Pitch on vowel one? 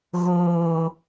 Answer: low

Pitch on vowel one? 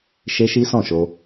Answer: high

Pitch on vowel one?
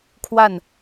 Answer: falling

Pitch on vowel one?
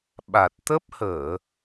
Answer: low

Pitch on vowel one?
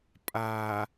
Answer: low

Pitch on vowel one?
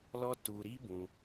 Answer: high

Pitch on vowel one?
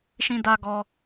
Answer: high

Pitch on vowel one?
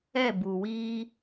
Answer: falling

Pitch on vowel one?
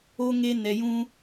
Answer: high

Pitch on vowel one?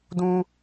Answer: high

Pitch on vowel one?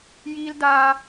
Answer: high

